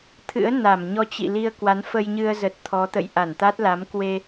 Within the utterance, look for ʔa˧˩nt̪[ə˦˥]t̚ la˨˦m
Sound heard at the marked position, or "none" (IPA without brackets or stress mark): a˦˥